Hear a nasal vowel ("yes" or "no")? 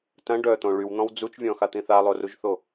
yes